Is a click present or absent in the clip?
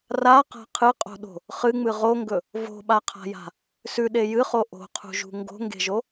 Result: absent